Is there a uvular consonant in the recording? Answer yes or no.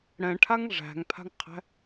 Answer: yes